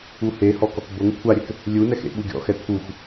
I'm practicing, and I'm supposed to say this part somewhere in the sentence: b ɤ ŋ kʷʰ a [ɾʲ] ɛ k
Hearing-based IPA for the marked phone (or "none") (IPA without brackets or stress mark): ɾʲ